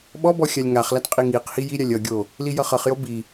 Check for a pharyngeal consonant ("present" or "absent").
absent